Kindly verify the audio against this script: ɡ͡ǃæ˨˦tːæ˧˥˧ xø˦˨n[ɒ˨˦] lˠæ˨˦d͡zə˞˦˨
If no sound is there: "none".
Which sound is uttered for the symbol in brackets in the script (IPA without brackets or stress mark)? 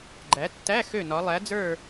ɒ˨˦